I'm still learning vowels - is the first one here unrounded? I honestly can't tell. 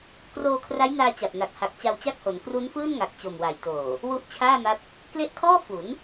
no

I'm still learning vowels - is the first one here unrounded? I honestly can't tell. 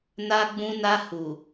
yes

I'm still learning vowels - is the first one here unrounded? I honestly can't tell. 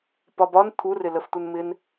no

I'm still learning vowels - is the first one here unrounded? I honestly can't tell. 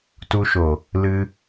no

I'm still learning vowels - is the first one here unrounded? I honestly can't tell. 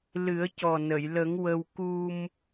yes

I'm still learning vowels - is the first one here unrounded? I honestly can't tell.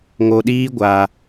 no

